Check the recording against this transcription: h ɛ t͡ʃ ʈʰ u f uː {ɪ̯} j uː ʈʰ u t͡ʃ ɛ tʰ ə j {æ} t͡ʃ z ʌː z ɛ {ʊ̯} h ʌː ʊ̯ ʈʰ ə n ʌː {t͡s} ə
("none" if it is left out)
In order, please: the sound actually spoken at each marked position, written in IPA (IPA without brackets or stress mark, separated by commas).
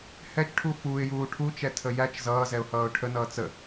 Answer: ɪ̯, æ, ʊ̯, t͡s